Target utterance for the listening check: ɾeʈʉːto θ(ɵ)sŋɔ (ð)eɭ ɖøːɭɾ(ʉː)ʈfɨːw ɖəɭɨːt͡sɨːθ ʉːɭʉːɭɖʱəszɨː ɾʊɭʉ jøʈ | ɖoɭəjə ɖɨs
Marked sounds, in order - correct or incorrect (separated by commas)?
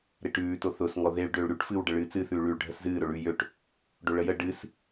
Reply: incorrect, correct, incorrect